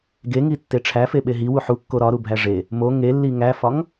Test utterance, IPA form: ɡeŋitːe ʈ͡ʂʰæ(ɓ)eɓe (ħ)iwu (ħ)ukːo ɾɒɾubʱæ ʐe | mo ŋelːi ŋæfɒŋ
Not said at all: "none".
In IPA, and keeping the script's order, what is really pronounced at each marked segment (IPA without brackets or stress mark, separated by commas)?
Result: f, ɦ, ħ